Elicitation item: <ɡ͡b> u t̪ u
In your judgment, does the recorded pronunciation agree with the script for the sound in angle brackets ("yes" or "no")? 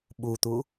no